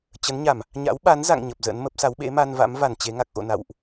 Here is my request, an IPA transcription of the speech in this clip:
t͡ɕə˨˦nɲa˧˩˨m | ɲa̰˧˥wɓa˨˦nza̰˧˨ŋ ɲə˨˩p̚zə̰˧˥nmə˦˥p̚ sa˨˦wɓḛ˧˥ma˧nva̰˧˥m va˧˩nt͡ɕe˨˦ŋa˨˩k̚ ʔo̰˧˨na̰˧˨wʔ

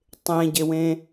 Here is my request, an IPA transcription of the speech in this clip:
tˤẽɟewẽ

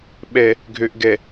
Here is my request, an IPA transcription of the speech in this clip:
ɓɛ˨ | ɡʱø˨ʔɡɛ˨

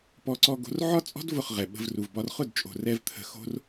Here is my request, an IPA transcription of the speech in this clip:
pɔ˦ǀɔ˦ɡo̤˦r ʕɒ˦t͡sʼɔ̤˦d vʊ˦˨χʁɛ˨ɓə̤˧vru˨v bɒ˧rχʊ˦˨dt͡ʃʼo̤˨rɛ˧v t̪ʰə̤˧xo̤˦r

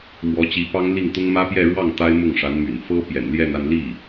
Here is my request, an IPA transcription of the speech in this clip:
mwɔ˧˥t͡ɕi˧˥pɑ˥ŋli˥˩ŋ t̪ʊ˥ŋmä˥pjɛ˥˧ ɻwɑ˥˩ŋ t̪a˥ɪ̯mʊ˥˩ŋʂa˧˥nmy̰˨˩n fɤ˥pjɛ̰˨˩nljɛ˥˧na˥˧n li˥˩

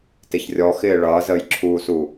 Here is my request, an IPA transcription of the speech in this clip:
tɪçrʲɔxɪː ɭʌːzəːjǁʰuːsu

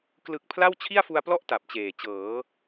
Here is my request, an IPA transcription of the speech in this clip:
klɯ˨˩k̚ pʰla˥˩w t͡ɕʰi˥˩a̯fu˧a̯plɔ˥˩ʔ ta˨˩p̚t͡ɕeː˨˩ t͡ɕɤː˩˦

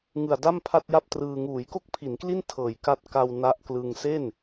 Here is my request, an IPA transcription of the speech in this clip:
ŋɯ˨˩a̯da˥˩m pʰa˥˩t̚ja˥˩p̚ trɯː˧ ŋuː˩˦jko˥˩k̚pʰi˩˦nkli˥˩n tʰɤː˨˩jka˦˥t̚ka˧w na˦˥ʔklɯ˧ŋ se˥˩n

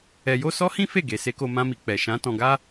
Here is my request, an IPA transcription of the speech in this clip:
ɛ˧jo˦ sɔ˦hĩ˦ fe˦˨ɡe˨ se˧ko˧mã˧mi˨ k͡pɛ˨ʃã˨˦ tɔ̃˧ɡa˦

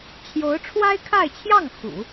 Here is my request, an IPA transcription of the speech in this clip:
t͡ɕʰjo˧˥ʊ̯ʈ͡ʂʰwa˥ɪ̯kʰa˥˧ɪ̯t͡ɕʰjɑ˥˩ŋ xṵ˨˩˦

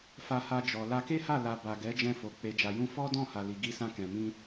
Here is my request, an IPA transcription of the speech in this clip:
fa˧ha˧d͡ʒɔ˨la˧ ke˦ha˦˨ la˨ ba˨ ɡɛ˨˦d͡ʒɛ̃˧fo˨ k͡pe˨d͡ʒa˨jũ˧ fɔ˦dɔ̃˦˨ ha˨li˨ ɡi˧sã˧ kɛ̃˨mĩ˧

